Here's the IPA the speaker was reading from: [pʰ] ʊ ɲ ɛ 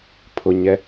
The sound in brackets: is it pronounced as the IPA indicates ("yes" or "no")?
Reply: yes